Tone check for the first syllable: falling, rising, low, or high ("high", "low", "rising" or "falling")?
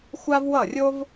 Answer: high